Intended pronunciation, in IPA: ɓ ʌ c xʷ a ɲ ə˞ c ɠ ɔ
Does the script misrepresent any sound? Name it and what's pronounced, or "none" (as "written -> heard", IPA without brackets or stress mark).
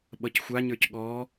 none